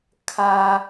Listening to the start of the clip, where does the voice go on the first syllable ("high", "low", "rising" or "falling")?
high